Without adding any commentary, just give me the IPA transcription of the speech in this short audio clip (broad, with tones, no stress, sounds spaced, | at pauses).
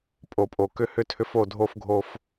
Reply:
pʼ o˨ pʼ o˨ k ʏ˦ h ʏ˦ tʰ ʏ˦ f o˦˨ dʱ o˦ f ɡʱ o˦ f